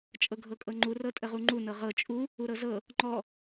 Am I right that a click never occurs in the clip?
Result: no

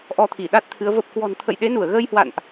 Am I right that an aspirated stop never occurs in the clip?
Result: no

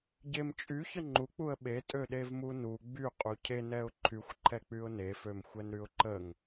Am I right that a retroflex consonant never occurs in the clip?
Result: yes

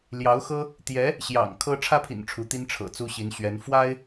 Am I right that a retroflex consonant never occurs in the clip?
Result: no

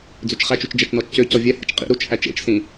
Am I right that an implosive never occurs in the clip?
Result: yes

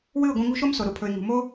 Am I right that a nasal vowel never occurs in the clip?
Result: no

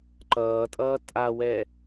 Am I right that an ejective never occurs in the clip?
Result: no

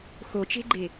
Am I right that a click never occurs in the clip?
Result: no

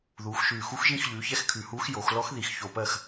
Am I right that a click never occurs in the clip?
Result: yes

